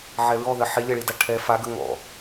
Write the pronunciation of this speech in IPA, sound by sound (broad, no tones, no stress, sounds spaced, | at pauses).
ʕ ɛ ɹ ɔ ð ɜ ħ i lʲ ɛ ɭ i d a ʈʰ ɛ f a ɡ ə ŋ ɔ̰